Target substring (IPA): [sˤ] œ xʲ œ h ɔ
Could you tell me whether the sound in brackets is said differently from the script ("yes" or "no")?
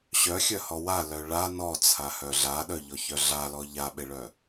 yes